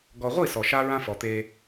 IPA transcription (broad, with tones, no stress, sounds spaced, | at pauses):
ɡ ɔ˨ ʁʷ i˦˨ s ɔ˨ ʃ a˦ ɹ ã˦ f ɔ˨ t̪ e˦